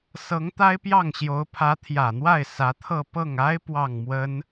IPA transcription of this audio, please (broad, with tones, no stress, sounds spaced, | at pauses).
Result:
s ɤ˧˥ ŋ t̪ a˥ ɪ̯ p j ɑ˥˩ ŋ ɕ j o˧˥ ʊ̯ pʰ ä˧˥ t̪ʰ j ä˨˩ n̪ w a˥˩ ɪ̯ s ä˧˥ t̪ʰ ɤ˥˧ p ɤ˥˩ ŋ a˥ ɪ̯ p w ɑ˥˩ ŋ m w ə˥ n